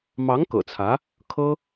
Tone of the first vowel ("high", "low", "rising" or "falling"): rising